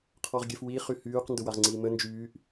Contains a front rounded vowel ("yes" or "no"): yes